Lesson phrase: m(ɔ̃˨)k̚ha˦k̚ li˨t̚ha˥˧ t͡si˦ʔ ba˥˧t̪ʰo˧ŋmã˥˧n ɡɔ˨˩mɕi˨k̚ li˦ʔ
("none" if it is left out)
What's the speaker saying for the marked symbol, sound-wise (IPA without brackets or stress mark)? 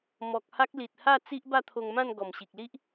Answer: ɔ˨